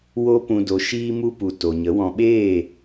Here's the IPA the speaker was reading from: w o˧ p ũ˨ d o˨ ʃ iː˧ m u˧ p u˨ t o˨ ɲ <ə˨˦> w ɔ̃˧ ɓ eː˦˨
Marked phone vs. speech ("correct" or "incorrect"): correct